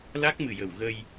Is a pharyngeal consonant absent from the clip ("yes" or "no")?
yes